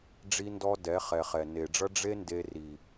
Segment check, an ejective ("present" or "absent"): absent